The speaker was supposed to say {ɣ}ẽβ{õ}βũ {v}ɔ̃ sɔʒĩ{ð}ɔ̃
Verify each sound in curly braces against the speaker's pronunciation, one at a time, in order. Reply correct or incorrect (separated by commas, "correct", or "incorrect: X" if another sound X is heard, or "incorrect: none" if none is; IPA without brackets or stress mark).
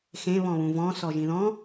incorrect: x, incorrect: ɔ̃, correct, correct